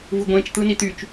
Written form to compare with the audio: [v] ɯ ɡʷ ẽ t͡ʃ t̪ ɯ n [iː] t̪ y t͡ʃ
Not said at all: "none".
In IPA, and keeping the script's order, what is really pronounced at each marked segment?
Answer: v, i

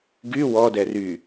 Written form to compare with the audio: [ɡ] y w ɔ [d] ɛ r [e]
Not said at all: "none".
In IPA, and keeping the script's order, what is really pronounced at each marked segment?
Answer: ɡ, d, y

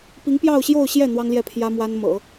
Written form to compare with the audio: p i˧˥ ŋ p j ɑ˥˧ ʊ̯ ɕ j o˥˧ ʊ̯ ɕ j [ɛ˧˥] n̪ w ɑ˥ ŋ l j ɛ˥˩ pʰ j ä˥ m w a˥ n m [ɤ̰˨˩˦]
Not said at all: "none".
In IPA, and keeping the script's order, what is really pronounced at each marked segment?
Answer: ɛ˥˩, ɤ̰˨˩˦

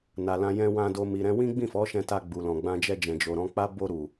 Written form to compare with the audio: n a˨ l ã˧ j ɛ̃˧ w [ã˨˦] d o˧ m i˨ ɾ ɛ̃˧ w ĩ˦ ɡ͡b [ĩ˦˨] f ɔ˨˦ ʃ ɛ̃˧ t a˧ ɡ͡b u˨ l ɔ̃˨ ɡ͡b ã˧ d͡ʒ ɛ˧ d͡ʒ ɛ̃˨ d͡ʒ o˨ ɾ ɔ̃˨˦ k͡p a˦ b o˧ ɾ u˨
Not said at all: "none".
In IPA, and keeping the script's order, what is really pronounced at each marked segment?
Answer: ã˧, ĩ˦˨

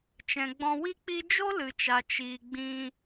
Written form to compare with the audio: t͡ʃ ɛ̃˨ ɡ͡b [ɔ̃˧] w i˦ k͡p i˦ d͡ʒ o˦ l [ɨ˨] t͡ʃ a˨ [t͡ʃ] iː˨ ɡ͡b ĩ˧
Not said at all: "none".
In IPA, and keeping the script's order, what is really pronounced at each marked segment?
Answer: ɔ̃˧, ɨ˨, t͡ʃ

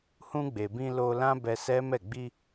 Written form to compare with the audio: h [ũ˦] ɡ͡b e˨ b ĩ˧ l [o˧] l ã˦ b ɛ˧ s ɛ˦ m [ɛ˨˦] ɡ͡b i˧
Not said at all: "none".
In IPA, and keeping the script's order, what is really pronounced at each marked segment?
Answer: ũ˧, o˧, ɛ˦˨

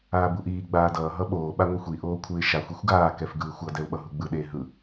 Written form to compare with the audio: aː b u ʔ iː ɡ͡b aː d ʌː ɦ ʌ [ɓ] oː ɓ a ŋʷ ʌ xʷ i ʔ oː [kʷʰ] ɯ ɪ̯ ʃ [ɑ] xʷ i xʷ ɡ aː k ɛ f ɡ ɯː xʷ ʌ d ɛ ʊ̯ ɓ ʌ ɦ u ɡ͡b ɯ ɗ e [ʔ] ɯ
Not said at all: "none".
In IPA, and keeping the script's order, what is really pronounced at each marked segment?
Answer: ɓ, kʷʰ, a, ɦ

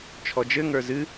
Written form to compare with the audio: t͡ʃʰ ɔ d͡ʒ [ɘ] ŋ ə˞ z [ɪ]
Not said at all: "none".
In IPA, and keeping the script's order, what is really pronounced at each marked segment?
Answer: ɘ, ɨ

